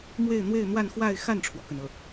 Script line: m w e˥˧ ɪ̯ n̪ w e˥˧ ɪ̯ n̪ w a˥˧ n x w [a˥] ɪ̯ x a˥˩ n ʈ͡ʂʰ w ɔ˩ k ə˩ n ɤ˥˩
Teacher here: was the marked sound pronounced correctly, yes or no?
no